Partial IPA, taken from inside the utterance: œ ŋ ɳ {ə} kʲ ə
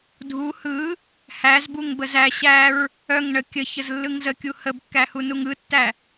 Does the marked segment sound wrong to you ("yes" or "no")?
no